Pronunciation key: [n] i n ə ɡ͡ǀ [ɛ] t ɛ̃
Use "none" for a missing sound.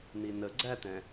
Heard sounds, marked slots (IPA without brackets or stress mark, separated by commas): n, æ